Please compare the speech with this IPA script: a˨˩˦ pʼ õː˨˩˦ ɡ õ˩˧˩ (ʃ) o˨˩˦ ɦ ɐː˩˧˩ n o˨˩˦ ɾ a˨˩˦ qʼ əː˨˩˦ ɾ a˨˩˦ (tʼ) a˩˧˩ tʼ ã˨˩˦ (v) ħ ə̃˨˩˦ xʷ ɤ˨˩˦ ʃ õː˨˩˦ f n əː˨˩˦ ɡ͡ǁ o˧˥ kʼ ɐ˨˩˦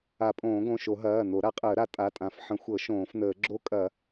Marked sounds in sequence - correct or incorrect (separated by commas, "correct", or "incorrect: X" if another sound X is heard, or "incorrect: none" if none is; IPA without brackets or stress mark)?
correct, correct, incorrect: f